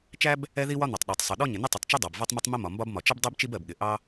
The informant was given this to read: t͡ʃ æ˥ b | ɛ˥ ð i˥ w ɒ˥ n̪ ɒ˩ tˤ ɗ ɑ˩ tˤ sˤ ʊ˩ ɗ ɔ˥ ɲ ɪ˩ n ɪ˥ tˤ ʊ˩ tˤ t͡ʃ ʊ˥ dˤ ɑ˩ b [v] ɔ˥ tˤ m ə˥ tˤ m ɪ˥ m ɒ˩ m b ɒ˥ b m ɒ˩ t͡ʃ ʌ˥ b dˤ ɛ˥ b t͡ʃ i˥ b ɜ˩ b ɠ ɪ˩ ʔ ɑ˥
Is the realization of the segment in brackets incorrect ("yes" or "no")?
no